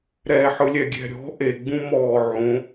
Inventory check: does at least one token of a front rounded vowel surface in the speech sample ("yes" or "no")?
no